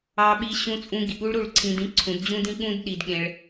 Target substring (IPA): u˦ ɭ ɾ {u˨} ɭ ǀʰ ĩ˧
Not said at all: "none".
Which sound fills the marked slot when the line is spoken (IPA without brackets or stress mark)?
u˦˨